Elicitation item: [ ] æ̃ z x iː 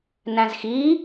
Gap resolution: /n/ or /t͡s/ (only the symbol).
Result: n